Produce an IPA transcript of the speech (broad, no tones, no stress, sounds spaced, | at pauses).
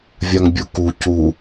vʲ a ŋ bʲ u k u c u